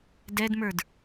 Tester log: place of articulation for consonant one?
alveolar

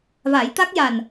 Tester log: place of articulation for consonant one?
labial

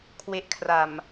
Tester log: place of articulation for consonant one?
velar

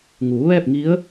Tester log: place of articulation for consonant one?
velar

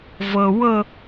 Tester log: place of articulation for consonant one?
labial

